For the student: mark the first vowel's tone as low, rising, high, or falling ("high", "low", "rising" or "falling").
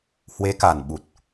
rising